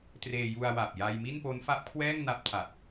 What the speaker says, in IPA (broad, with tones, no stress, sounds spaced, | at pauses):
t r eː˧ j u˧ a̯ w a˨˩ p̚ j a˧ j m i˥˩ n p o˦˥ n f a˦˥ p̚ kʰ w ɛː˥˩ ŋ n a˦˥ p̚ tʰ a˨˩ t̚